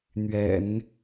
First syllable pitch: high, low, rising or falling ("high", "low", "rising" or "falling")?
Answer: low